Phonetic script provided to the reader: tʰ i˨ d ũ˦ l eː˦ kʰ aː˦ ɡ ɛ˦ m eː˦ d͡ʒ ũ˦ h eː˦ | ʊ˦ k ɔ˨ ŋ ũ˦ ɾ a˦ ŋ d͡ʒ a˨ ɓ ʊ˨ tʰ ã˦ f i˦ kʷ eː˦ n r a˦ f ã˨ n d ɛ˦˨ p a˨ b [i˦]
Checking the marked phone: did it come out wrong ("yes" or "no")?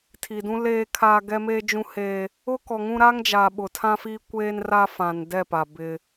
yes